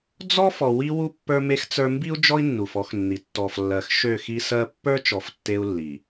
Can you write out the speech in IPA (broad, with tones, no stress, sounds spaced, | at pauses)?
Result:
d͡z ɔ˦ f ɔ˨ w i˦ w u˦ pː ə˞˦ m e˦ x t͡s ə˞˦ m b i˦ u̯ d͡ʒ ɔ˦ i̯ nː u˨ f ɔ˦ x nː i˨ tː ɔ˨ f lː ɜ˨ x ʃ ø˦˨ x i˦ s ɜ˦ pː ə˞˦ t͡ʃ ɔ˨ f tː e˦ u̯ lː i˨